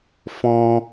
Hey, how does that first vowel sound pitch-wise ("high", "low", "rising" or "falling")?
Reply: high